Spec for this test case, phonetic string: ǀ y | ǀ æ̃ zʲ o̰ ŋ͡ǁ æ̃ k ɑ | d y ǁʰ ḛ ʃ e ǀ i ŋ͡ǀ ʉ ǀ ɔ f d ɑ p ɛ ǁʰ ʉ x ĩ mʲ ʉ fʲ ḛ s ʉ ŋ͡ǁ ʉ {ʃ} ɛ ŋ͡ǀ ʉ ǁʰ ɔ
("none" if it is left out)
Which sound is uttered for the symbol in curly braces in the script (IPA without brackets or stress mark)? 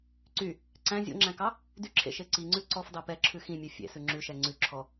ʃ